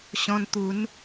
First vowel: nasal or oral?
nasal